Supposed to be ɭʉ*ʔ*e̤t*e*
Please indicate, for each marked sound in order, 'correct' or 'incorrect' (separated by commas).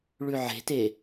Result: incorrect, correct